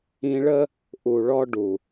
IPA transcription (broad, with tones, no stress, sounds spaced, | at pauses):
ĩ˧ ɭ ə˦ | ʔ u˨ ɭ ɔ˧ ɖ u˨